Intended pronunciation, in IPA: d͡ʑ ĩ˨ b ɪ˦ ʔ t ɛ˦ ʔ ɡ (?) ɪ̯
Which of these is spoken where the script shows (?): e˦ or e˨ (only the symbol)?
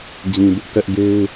e˦